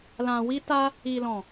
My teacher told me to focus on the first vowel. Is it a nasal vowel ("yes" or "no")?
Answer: yes